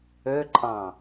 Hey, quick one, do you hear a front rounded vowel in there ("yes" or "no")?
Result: yes